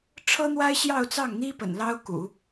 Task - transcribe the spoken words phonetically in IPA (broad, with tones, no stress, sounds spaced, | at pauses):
ʈ͡ʂʰ ɤ˥ n̪ w a˥ ɪ̯ ɕ j ɑ˥˧ ʊ̯ t͡s ɑ˥˩ ŋ n̪ i˥ p ə̰˨˩ n l ɑ˥ ʊ̯ k ṵ˨˩˦